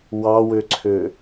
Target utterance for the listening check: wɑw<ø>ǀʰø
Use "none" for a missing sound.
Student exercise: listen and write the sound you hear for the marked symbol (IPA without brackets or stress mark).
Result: ø